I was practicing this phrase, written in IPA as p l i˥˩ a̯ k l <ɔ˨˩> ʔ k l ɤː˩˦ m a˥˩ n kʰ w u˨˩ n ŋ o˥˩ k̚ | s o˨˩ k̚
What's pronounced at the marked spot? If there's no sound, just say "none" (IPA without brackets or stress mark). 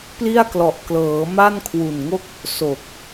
ɔ˨˩